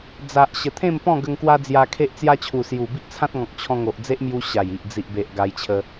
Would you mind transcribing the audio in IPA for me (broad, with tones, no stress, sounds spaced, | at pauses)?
d͡z a˨ ʔ ɕ ə˨˩ t̪ʰ ẽ˥˧ m p ɔ̃˥˧ ɡ ə˧ ŋ k w a˦ d͡z j a˧ kʰ e˦ ʔ t͡s j a˦ t͡ɕʰ u˨˩ s j u˨˩ b i˦ ʔ t͡sʰ ã˦ t̚ ŋ ɔ̃˨ k̚ t͡ɕʰ ɔ̃˧ ŋ o˨ ʔ d͡z e˦ ʔ m j u˧ ɕ a˨˩ j i˨ ʔ d͡z i˨ ʔ b e˨ ʔ ɡ a˧ j t͡ɕʰ ə˧